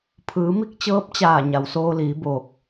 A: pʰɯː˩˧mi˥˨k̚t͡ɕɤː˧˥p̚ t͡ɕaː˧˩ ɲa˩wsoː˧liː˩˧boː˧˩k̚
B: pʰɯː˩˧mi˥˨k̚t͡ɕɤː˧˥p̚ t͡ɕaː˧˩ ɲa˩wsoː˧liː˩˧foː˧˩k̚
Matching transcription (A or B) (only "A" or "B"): A